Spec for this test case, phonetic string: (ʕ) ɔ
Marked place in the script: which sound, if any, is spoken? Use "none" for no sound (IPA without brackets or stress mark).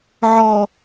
ʕ